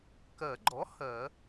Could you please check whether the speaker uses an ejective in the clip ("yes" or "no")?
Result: no